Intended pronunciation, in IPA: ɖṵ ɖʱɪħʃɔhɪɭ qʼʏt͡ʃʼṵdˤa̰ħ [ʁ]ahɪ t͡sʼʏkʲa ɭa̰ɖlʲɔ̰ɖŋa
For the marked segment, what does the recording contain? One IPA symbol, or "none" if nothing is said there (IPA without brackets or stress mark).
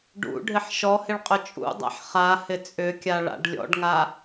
χ